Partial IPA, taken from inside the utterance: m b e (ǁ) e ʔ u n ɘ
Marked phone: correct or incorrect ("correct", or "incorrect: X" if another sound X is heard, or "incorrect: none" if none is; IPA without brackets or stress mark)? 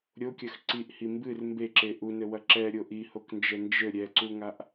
correct